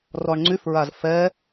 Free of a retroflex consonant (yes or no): no